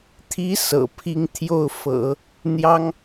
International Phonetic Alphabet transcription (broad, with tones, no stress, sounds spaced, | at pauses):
t̪ʰ i˧˥ s ɤ̰˨˩ pʰ i˥˧ ŋ t̪ʰ j o˥˩ ʊ̯ f ɤ̰˨˩˦ | n̪ j ɑ˥ ŋ